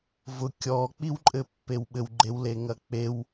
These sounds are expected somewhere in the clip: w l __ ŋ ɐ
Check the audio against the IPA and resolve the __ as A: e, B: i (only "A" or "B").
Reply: A